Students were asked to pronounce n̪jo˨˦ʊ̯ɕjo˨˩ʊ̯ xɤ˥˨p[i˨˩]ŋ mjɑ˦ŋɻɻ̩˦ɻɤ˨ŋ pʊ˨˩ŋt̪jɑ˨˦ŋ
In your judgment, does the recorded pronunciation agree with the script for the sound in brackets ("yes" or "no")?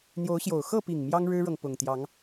yes